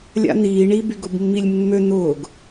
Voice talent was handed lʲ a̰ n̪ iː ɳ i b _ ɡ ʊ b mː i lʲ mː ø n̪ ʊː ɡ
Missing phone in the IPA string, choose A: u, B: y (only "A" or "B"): B